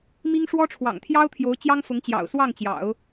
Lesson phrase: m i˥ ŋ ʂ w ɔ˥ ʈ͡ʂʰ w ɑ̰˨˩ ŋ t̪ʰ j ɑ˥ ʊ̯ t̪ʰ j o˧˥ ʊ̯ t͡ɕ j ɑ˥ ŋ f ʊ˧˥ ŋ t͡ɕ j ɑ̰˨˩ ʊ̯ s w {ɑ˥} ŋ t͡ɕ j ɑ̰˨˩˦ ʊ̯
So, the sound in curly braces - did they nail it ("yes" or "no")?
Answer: no